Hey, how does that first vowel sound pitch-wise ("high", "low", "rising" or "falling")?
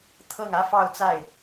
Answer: falling